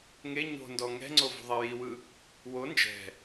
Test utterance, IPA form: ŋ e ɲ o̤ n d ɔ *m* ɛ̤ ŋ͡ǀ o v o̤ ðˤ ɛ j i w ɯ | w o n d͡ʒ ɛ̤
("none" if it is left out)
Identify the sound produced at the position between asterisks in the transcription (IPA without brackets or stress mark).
ŋ